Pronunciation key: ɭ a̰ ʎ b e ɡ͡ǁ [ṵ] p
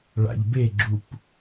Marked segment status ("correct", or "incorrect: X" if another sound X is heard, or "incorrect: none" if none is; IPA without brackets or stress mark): incorrect: u